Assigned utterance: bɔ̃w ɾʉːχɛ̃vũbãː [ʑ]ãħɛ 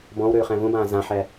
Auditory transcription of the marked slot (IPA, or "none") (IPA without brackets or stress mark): z